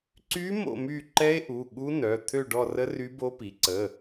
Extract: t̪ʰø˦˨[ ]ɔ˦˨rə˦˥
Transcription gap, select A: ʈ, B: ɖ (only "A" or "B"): B